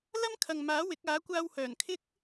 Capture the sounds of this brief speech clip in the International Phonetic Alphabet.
l ɐ˥ m kʰ ɐ˨ ŋ m aː˨˥ w ɪ˨˥ k̚ aː˨˥ kʷ aː˧ w h œː˨˩ n kʰ ɪ˥ k̚

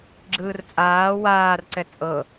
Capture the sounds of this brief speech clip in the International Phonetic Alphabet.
ɡ͡ǁ ɯː r t͡sʼ aː w aː r ǀ ɛ t͡sʼ ɤ

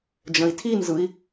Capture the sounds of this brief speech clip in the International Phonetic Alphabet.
d͡ʒ ə̃ i̯ tʰ i n z ɯ i̯

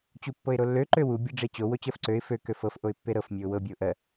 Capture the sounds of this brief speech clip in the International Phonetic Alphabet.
t͡ɕ u pː ɤ ɪ̯ ɾ o lː ø ǃ ø w u bʲ e ɖ͡ʐ e t͡ɕ o w o t͡ɕ ɜ f ǀ ø ɪ̯ f ø k ø f ɤ f ʔ o ɪ̯ pː e ɾ ɤ f mʲ ø ʊ̯ w ɤ bʲ ɤ ʊ̯ ʔ ɜ

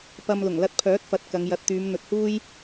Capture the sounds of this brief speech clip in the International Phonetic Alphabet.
p ɐ˧ m l ʊ˨˩ ŋ l ɐ˧ t̚ pʰ œː˨˥ t̚ f ɐ˨ t̚ k ɐ˨˧ ŋ j ɐ˧ t̚ t̪ yː˨˧ m n̪ ɵ˨˥ t̚ h uː˥ j

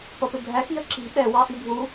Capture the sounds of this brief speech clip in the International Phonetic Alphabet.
p ʌ p ɪ bʱ æ x j ə ǁ i̤ ɓ ɛ w ɑ ʔ i bʱ u

